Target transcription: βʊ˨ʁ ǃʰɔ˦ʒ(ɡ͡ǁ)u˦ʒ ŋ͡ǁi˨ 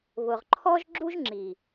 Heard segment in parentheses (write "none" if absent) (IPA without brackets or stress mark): ɡ͡ǁ